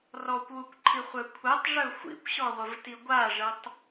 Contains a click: yes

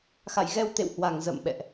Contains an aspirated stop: no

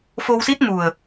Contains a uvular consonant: no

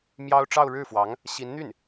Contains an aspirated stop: no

